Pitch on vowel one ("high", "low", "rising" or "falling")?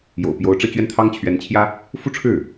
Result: low